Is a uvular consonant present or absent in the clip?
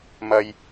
absent